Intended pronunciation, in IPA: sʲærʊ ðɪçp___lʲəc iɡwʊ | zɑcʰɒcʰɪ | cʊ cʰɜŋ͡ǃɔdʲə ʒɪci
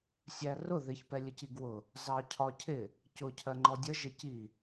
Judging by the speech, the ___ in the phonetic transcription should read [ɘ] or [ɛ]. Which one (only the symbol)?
ɛ